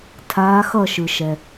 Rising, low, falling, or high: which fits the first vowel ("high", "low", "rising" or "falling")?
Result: rising